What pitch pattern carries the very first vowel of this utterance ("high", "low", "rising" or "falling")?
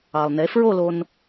low